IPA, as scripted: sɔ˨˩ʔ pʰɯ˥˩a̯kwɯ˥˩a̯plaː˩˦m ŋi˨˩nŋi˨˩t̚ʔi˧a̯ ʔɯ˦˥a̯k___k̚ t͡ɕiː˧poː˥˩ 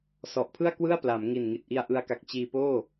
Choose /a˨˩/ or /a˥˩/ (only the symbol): a˨˩